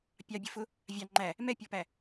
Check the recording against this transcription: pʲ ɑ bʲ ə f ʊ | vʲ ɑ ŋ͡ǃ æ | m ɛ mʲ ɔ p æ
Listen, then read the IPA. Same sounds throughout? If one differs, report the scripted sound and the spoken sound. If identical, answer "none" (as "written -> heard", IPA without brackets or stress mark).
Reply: mʲ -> pʲ